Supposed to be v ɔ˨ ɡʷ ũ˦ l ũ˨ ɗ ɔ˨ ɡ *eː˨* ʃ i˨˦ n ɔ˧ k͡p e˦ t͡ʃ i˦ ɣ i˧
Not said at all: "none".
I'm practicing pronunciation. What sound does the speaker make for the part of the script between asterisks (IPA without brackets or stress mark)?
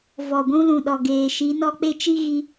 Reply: eː˨